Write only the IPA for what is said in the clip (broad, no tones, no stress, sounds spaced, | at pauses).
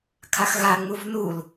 kʰ a x ɣ a ŋ͡m u v n u l